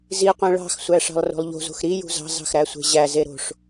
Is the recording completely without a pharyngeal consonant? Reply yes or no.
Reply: yes